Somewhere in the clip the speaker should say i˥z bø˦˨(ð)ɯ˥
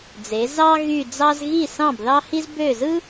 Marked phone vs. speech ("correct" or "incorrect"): incorrect